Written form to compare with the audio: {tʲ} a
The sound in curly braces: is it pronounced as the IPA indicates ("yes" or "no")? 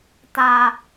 no